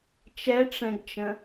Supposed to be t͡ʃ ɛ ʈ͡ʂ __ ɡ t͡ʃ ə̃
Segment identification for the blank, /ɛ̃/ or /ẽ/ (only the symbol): ɛ̃